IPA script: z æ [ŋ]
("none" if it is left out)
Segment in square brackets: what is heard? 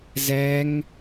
ŋ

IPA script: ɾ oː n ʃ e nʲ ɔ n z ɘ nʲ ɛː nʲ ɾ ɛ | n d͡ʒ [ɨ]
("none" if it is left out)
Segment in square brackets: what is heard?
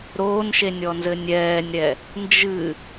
ɨ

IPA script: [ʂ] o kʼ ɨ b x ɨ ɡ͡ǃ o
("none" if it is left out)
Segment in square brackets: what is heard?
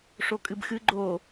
ʂ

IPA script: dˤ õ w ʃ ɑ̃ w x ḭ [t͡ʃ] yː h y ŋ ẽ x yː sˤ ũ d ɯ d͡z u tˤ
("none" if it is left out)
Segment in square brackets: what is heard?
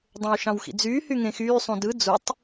d͡z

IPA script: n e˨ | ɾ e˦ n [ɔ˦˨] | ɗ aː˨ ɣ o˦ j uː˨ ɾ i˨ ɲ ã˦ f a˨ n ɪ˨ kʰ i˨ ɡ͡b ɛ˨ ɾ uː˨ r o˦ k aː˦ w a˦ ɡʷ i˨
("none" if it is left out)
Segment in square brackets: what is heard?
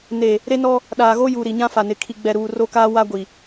ɔ˦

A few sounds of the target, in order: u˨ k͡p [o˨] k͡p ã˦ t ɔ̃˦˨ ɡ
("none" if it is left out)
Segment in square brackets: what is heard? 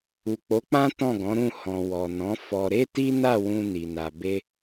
o˨˦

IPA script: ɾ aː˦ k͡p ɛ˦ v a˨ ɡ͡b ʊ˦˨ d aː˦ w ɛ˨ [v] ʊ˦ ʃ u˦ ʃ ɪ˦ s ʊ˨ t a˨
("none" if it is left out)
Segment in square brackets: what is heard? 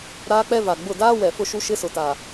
f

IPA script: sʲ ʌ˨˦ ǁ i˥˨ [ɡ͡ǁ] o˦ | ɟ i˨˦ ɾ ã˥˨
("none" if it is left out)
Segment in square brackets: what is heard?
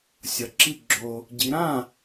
ɡ͡ǁ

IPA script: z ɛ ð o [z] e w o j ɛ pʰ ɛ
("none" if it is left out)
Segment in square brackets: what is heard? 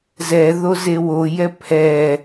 z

